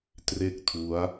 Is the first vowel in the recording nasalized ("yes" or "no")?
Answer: no